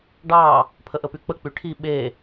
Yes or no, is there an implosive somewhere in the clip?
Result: yes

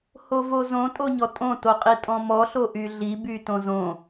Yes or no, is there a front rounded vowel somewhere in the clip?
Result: yes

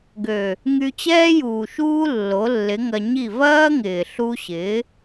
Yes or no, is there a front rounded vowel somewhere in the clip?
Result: yes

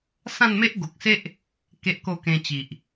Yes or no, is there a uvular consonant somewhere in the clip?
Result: no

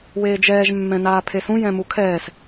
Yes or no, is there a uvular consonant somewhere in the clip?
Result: no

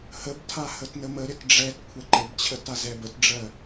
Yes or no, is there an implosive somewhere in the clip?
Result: no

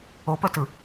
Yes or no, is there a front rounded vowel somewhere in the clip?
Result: yes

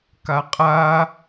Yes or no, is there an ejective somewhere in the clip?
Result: yes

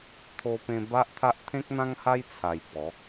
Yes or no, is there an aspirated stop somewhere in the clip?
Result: yes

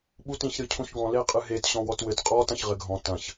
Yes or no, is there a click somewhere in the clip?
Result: no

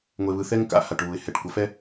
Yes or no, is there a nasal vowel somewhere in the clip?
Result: no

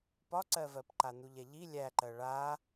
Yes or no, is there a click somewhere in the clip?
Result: yes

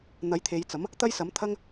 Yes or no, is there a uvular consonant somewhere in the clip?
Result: no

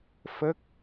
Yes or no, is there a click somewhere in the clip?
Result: no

